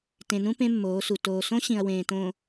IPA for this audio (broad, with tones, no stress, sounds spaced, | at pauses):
t ẽ˨ n ũ˦ p ẽ˦ mː oː˨˦ s u˨ t oː˨ s õ˦ ɕ ĩ˨ ɐ̯ w ẽː˨ t õ˨